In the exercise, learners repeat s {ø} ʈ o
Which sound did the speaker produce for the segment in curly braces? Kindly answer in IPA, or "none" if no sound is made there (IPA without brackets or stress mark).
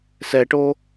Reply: ɛ